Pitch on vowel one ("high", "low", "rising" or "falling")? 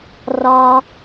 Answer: high